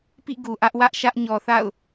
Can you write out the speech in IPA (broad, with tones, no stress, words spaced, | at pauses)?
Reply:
pḭ˦˨ɡu˨ ʔä˦ʔwä˦ʔʃä˦ʔ ɲɔ˨θa̰˦˨ʊ̯